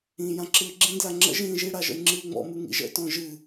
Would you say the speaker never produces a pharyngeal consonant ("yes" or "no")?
yes